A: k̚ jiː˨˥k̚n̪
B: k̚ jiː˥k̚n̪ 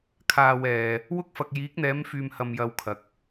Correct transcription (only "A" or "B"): A